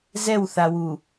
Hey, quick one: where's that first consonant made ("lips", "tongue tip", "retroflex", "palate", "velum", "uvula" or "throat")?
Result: tongue tip